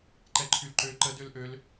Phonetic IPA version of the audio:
ǃ ɛ ǃʰ y l ǃ ø ǃ ə d ø l ʔ ø l

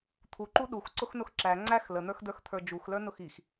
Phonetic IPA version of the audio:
t̪ʰ u ǃ u ɗ u x ǀ ʊ x n ʊ x ǁ æ ŋ͡ǀ æ x l ə n̪ ə˞ x d ə˞ x t̪ʰ ə˞ d͡ʒ u x l ə˞ n ʊ x i x

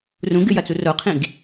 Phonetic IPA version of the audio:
r ũ ɡ ɨ j ɐ t͡s u r o qʰ ĩ ɡ

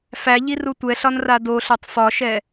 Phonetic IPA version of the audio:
f æ ʎ i r u tʷ ɛ ɬ ɒ n r a d o ɬ o tˤ f ɒ ʃ ɛ

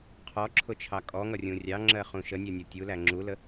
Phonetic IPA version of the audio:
qʰ ɔ ǁʰ ʊ t͡ʃʰ ɑ kʼ ɔ ŋ ʌ rʲ ũ rʲ ɑ ŋ͡ǁ ɜ χ ũ ʃ ə nʲ ɜ nʲ ɔ tʲ u l æ ŋ͡ǁ u l ə

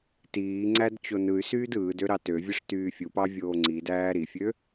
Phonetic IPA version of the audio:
t iː ŋ͡ǀ æ d t͡ɕ o n ɯ y̯ s yː d ɯː d ø ɾ ɑ t ø vʲ ɯ ʂ t yː fʲ u p ɑ vʲ oː ŋ͡ǀ i d æː ɾ i fʲ ø

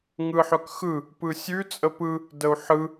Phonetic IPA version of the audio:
ŋ ɯ ħ œ k x ɯ | p ɯ sʲ ʉ t͡sʼ ə p ɯ | d ə u̯ ħ ɯ

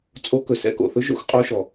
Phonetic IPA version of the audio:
t͡sʼ o˧˥ k ɵ˩ s ɛ̰˧˥ k o̰˩ θ ɵ˧˥ ʒ o̰˧˥ x qʼ o˧˥ ʃ ɔ˩

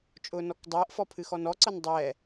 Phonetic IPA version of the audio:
t͡ʃʼ ʊː n ɔ k dˤ ɤː ʔ f ɔ pʰ ɨ x ɔ n ɔ ǀ ɤ n dˤ ɛ

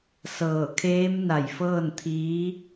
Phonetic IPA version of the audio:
s ɤː˧˩ kʰ eː˧˥ m n a˧˩ j f ɤː˥˨ n t̪ʰ iː˧˥

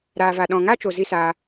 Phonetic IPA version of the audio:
ɾ aː˨ v a˨ ɗ ɔ̃˨ ŋ a˦ t͡ʃ o˨ z i˦ s aː˧

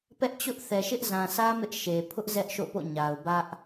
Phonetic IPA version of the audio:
p ɛ˦ ʔ t͡ɕ ʊ˦ ʔ θ ɛ˨ ʃ ɪ˦ ʔ z ã˨ s ä˦ m ɪ˦ ʔ ʃ e˨ pʰ ʊ˦ ʔ z ɛ˦ ʔ ʃ o̰˦˨ p o̰˦˨ ɲ a˨ ʊ̯ b ä˦ ʔ

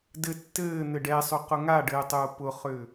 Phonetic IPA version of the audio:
d ɘ tː ɘː n̪ ɘ ɖ ɛ sˤ ʏ q ʊ ŋ a ɖ ɘː tˤ ʊː p ʊ χ ʏ

